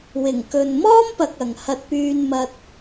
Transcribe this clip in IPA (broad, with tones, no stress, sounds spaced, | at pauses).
w ɪ˨˩ ŋ k ɵ˨ n m ɔː˥ m p ɐ˨ k̚ ɐ˨ ŋ h ɐ˧ t̚ p yː˧ n m ɐ˧ t̚